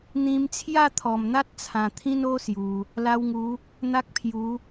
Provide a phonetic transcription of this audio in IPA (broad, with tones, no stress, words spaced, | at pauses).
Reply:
n̪ĩ˧mt͡sʰja˥˧t̪ʰɔ˨˩mn̪a˦t̚ t͡sʰã˨˩t̪ʰĩ˦no˦ sju˧ | la˧wŋu˨˦ | n̪a˦k̚pʰju˨˦